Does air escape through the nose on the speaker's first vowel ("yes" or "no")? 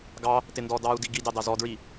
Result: no